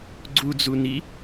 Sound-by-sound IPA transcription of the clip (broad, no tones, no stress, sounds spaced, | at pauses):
ɡ͡ǀ u d͡z u n i